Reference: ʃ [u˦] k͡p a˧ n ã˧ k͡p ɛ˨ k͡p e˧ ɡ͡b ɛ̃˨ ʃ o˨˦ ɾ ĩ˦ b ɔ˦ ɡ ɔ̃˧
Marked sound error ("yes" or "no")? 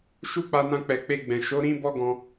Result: no